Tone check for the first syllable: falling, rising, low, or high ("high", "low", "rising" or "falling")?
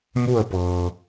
falling